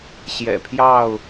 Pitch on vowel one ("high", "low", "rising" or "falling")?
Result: low